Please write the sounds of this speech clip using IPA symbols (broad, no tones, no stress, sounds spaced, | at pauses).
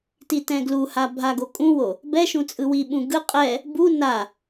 t i t ɛ̃ ɡ l u h a bʱ a ɡ o kʼ ũ w o | b ɛ ʃ ũ t͡sʼ ɯ w i ɓ ũ ɡ ɯ qʼ ɛ | b u n a